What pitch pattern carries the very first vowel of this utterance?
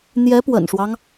rising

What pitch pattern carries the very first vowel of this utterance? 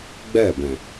falling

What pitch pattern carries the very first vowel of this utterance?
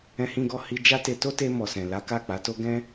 high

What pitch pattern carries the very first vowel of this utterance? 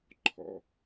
low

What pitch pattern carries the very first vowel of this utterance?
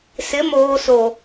rising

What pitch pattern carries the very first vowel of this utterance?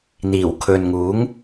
low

